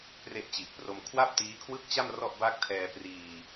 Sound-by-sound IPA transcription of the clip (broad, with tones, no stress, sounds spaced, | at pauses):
p r e˦˥ ʔ t͡ɕ i˨˩ ʔ p r o˧ m kʰ w a˥˩ p̚ t iː˦˥ kʰ w ɯ˥˩ k̚ t͡ɕ a˥˩ m r ɔ˥˩ ʔ b a˥˩ k̚ tʰ ɛː˧ p r iː˧